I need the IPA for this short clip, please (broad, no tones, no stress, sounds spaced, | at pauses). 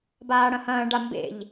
b aː ɽ ɐ̃ h ɐ̃ː ɖ a m b ḛ ʎ